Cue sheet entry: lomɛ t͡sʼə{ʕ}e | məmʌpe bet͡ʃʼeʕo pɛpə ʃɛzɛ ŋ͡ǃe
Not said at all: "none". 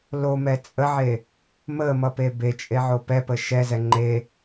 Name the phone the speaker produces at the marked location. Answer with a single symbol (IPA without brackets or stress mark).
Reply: ʕ